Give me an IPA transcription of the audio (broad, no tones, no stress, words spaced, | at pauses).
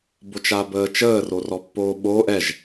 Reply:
bot͡ʃabəːt͡ʃəː rorɔpːoːɓoːʔ ɛʒ